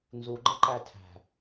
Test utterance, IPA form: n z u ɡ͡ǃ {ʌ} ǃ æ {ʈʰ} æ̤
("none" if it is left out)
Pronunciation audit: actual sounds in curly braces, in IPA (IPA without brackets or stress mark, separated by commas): ə, tʰ